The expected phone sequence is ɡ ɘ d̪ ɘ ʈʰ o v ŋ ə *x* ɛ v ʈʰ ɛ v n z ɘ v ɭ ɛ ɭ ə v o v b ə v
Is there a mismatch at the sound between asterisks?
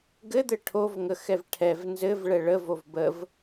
no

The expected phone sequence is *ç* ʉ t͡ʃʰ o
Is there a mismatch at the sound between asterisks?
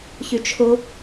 no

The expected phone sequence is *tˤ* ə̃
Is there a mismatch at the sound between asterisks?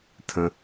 yes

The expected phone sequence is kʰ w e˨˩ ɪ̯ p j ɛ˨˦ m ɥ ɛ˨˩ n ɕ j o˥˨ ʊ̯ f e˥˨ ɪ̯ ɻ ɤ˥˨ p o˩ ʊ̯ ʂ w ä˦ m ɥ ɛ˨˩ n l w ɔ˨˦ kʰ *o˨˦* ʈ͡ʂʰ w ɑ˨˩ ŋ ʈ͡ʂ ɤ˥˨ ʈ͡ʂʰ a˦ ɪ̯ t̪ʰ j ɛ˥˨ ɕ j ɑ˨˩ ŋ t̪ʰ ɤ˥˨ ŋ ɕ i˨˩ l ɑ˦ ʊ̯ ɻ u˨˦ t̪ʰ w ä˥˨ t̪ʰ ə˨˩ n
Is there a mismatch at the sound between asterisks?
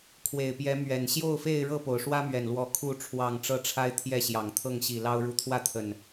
yes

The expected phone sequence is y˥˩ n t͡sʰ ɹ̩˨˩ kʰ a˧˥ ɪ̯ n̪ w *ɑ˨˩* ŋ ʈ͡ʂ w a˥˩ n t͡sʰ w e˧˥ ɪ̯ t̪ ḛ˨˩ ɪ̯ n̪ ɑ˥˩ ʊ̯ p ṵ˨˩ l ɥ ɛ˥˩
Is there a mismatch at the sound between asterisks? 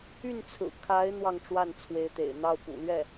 yes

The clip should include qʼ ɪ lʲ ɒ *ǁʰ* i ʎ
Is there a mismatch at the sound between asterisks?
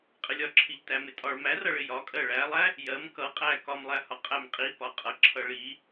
no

